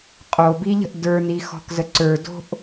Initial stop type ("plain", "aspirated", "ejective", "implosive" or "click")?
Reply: ejective